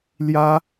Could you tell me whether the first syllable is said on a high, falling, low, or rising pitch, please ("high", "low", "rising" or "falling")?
high